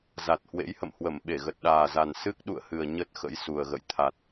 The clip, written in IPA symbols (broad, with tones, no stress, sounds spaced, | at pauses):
z a˨˩ t̚ h w ḛ˧˥ j h ə̰˧˨ m h w ə˧˩ m ɓ e˧˩ ɣ ə˨˩ t̚ ɗ aː˨˩ z a˨˩ n s ɨ˦˥ k̚ ɗ ṵ˧˨ ə̯ h ɨ˨˩ ə̯ ɲ ə˦˥ t̚ x ə̰˧˥ j s u˨˩ ə̯ ɣ ə̰˧˨ j t̪ʰ a˨˩ t̚